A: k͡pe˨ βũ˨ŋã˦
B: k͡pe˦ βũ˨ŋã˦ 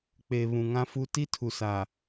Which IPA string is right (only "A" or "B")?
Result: A